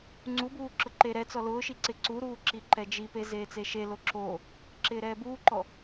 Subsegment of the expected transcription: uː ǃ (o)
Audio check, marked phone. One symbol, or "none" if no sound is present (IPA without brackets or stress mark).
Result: ɔ